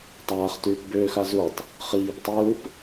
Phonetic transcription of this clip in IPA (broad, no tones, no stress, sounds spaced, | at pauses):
tˤ aː χ t yː p b ʏː x a z u tˤ | χ iː p tˤ ɯː p